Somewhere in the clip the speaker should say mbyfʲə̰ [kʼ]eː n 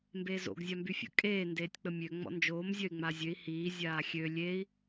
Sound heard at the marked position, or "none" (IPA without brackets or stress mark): kʼ